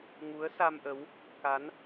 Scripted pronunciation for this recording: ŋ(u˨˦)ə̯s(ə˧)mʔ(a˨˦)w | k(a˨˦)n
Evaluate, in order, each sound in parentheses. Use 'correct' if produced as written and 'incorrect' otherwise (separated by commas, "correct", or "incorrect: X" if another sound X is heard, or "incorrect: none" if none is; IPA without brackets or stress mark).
correct, incorrect: a˧, incorrect: ə˨˦, correct